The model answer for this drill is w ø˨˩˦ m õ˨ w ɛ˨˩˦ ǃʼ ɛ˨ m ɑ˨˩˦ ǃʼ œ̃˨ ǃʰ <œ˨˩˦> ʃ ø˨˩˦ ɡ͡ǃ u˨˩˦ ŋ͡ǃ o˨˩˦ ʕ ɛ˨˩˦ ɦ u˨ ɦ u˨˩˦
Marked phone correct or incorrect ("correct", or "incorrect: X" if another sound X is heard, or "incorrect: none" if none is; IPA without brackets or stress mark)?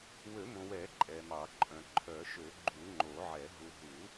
correct